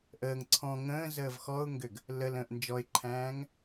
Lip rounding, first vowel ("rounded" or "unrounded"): unrounded